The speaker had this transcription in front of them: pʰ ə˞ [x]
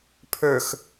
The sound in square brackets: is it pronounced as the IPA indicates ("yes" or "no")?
yes